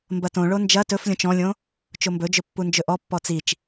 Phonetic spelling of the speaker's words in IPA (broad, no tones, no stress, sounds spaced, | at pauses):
m b ɐ t õ ɭ o n d͡ʒ ɐ t ɵ f lʲ õ t͡ʃ ɔ̃ lʲ õ | t͡ʃ o m b ɵ d͡ʒ ɵ pː u n d͡ʒ ɵ ʔ ɔ pː ɔ t͡s i t͡ʃ